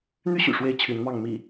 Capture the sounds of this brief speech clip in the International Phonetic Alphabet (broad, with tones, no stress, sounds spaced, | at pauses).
n̪ y˦ ɕ y̰˨˩ ʂ w e˥˨ ɪ̯ t͡ɕʰ y˨˦ n m ɑ˥˨ ŋ m ḭ˨˩